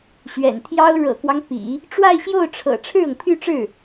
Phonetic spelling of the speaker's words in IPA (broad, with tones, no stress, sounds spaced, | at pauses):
ɕ ɥ ɛ̰˨˩ n t̪ʰ j ɑ˥ ʊ̯ ɻ ɤ̰˨˩ k w ɑ˦ ŋ p ḭ˨˩˦ | ʈ͡ʂ w a˥˧ ɪ̯ ɕ j o˥˩ ʊ̯ ʈ͡ʂʰ ɤ̰˨˩ ʈ͡ʂʰ ɻ̩˥˩ ɤ˩ ŋ pʰ y˥˧ ʈ͡ʂ ɻ̩˥˩